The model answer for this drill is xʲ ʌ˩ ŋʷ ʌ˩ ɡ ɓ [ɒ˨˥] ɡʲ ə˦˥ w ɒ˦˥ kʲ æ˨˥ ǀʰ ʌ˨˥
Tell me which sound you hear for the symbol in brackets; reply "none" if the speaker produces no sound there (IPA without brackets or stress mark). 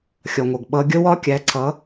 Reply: ʌ˨˥